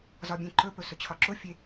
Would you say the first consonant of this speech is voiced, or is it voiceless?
voiced